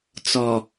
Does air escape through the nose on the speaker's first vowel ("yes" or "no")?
no